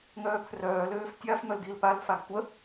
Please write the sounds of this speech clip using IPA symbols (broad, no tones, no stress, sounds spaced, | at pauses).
ŋ œː pʰ r œː l øː f tʲ a f m œ l d i l p a l f a ɡ tʷ ə